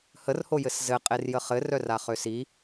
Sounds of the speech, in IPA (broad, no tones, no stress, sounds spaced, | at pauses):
h ə r h o j ɘ s z ɘ qʼ e r j ə χ ɘ r œ r a χ ø s i